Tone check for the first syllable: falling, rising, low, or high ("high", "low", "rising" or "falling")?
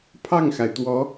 falling